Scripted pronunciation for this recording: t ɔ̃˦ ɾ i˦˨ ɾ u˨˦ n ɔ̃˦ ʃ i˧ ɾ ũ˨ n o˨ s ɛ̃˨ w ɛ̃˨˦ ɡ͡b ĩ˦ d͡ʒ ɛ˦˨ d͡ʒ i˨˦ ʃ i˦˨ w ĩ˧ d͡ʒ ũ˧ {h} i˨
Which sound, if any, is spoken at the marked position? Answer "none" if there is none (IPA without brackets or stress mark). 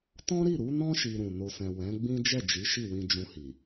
h